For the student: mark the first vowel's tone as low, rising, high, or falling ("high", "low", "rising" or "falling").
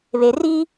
low